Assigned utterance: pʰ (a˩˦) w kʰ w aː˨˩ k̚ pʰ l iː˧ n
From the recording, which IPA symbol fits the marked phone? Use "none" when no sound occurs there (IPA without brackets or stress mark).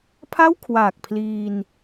a˥˩